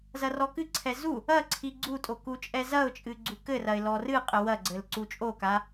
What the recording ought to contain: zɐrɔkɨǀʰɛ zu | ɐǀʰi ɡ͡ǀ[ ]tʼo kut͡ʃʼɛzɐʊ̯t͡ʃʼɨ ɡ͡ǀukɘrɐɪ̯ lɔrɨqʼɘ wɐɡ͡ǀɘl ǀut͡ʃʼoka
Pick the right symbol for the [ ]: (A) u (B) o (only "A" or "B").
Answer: A